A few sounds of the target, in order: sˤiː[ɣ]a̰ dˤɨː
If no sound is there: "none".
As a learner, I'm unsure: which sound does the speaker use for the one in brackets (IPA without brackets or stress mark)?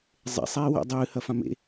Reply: w